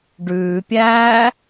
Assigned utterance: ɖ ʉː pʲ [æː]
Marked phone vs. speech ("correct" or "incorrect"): correct